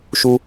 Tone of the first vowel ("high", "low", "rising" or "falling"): low